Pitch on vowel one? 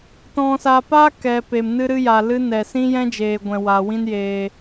low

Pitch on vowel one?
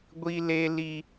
high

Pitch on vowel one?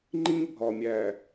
high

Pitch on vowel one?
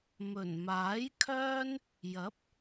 low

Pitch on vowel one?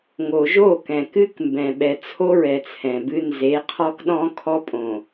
low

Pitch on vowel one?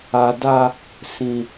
low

